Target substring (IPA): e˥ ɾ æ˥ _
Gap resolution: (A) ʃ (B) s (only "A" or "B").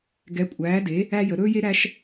A